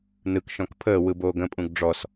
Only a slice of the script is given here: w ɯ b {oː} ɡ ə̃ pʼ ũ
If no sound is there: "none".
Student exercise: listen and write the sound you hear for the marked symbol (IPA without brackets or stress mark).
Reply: oː